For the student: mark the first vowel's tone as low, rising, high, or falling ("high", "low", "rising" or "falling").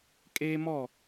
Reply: high